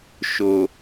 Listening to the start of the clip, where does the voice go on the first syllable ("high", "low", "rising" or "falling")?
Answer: low